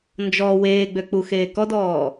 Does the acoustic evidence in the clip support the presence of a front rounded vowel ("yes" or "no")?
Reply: yes